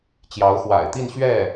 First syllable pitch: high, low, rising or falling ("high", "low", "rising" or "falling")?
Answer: rising